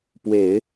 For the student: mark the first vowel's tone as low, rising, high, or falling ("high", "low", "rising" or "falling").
low